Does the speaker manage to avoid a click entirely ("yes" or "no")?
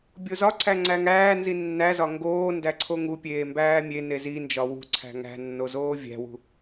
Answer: no